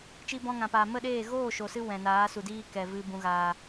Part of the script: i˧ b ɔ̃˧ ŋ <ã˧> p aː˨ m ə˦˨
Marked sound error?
yes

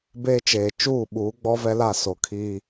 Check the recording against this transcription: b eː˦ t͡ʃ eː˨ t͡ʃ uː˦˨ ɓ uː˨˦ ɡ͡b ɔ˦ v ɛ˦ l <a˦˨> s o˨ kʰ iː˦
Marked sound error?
no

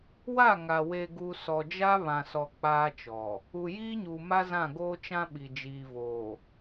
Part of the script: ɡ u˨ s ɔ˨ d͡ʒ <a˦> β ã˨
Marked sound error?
no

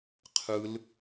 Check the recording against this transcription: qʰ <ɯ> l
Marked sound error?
no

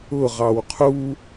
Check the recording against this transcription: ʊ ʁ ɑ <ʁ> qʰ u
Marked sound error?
yes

